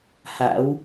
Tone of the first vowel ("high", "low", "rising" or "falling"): rising